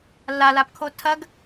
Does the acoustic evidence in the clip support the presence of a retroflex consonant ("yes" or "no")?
no